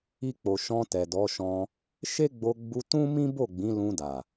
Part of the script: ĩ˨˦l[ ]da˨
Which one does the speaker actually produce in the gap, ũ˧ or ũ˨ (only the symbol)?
ũ˧